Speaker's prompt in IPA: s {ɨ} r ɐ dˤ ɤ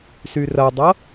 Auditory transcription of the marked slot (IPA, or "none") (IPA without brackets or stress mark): y